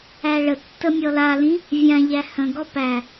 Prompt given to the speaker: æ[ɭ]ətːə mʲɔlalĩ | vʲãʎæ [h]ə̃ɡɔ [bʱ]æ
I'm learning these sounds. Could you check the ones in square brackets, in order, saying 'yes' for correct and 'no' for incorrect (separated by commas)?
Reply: yes, yes, no